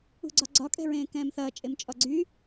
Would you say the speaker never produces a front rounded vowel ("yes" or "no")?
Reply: no